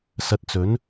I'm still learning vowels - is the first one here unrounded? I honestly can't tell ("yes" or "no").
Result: yes